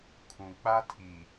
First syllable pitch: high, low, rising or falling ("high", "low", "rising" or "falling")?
low